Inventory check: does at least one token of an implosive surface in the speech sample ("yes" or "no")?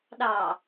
yes